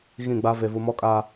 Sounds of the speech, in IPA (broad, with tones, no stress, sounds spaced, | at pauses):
ɣ ĩ˦˨ ɡ͡b a˦ v e˨ v u˨ m ɔ˦ kʼ aː˨